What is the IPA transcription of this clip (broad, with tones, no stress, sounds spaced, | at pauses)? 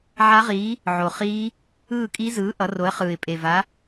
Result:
ʕ a˦˥ ʁ iː˨˥ | ʕ o˨˩ χ iː˦˥ | ɯː˥˨ kʼ i˦˥ z ɯː˨˥ ʔ ʌ˨˥ r o˨˥ ə̯ χ ɯː˨˩ ɪ̯ pʼ e˨˩ v a˨˥